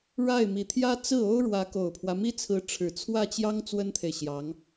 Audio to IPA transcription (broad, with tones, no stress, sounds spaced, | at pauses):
ɻ a˥˩ ɪ̯ m i˨˩ t̪ʰ j ä˥ t͡s ɹ̩˥˩ o˥ ʊ̯ ɻ w ä˧˥ k o˨˩ ʊ̯ pʰ w ä˦ m i˥ t͡sʰ ɹ̩˧˥ ʈ͡ʂʰ ɻ̩˨˩ t͡sʰ w ä˥˩ t͡ɕ j ɑ˥ ŋ t͡s w ə˥ n t̪ʰ e˨ ɪ̯ ɕ j ɑ˧˥ ŋ